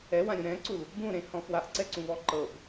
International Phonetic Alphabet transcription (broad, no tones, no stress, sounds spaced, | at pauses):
ɛ w ã ɾʲ ũ ɾ ɛ̃ ǀ u l | b ũ ɾ ẽ h ɔ̃ f w a ʔ ǀ ɛ ǀ ũ β ɔ ǃ ɤ b